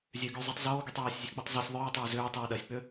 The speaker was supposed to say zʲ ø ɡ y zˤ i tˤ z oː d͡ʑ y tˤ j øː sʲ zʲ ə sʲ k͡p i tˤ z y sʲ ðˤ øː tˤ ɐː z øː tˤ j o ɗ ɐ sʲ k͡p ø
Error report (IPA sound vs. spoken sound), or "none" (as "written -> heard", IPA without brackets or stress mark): d͡ʑ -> ɡ